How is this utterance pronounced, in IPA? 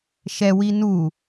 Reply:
ʃɛwi nu

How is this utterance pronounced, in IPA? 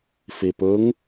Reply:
fipɯŋ

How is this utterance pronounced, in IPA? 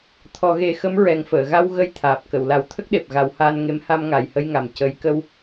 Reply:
t̪ʰɔ˨˩˦ɣe˨˩˦xə˧˥m ɹɛ˨˩ŋfəː˨˩˨ɣa˧w ɣə˧jt̪ʰaː˨˩p̚ kə˨˩˨wla˨˩˦w t̪ʰə˦˥k̚ɗe˨˩p̚ ɣa˨˩˦whaː˧nŋe˧˥m ha˧mŋa˨˩jhə˧jŋa˨˩m cə˧j kə˧w

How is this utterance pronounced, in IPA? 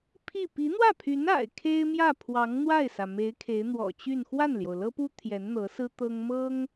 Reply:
pʰi˥˩ pi˧˥n̪wä˥˩pʰy˧˥n a̰˨˩ɪ̯ kʰe˥ɪ̯mjä˥˩ pʰwɑ˧˥ŋ n̪wa˥˩ɪ̯sä˩me˧˥ɪ̯ kʰe˧˥ɪ̯ n̪wɔ̰˨˩t͡ɕy˥˧n xwa˥˩nljo˩ʊ̯lɤ˥pu˥ t̪ʰjɛ˧˥nn̪ɤ˧˥sɹ̩˥ t̪ɤ˥ŋmɤ˥ŋ

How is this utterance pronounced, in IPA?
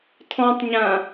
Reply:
tʰɔ̃tˤɲã

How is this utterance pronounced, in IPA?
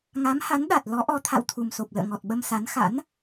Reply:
ŋa˨˦mha˨˦nɗa˨˩t̚ lɔ˨˦ʔɔ˨˦ t̪ʰa̰˧˨wt̪ʰu˨˩mso˨˩p̚ lə̰ː˧˨ŋɔ˨˩t̚ɓə˧msa˨˦n xa̰˧˥n

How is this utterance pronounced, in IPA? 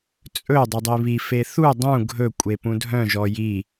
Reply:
t͡sʼɵ dˤydˤiβi feθu dˤũ ɡʱɵkʷʼe pũdʱœ̃ ʒɔji

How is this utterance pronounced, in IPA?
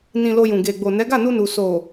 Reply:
nĩ˨ lo˧jũ˨ ɡe˨ɡ͡bo˨ nɛ˨˦ɡa˦˨nu˧nu˨ so˨

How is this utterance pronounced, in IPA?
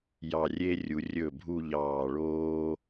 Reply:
jɑ˧˩rʲe˥rʲu˩˧ rʲɵ˧˩ bʱu˥˧ʎɑː˧˩ ɭoː˥

